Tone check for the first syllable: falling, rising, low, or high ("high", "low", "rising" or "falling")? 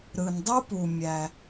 low